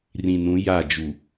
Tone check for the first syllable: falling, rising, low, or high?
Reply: low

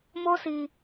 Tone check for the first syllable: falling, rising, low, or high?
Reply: high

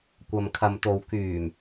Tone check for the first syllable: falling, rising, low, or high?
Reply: low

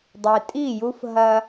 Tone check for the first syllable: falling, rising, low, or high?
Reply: low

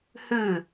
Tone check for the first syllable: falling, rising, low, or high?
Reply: falling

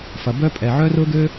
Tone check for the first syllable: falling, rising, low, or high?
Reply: low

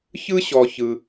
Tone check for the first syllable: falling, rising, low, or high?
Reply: high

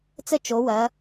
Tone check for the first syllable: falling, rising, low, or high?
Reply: high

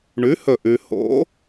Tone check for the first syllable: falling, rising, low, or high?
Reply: rising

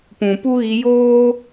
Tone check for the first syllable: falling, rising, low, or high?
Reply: low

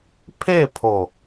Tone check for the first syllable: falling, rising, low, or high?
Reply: falling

